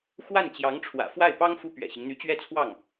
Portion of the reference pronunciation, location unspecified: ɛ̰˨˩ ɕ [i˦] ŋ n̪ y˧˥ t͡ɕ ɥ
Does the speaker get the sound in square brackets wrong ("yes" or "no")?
no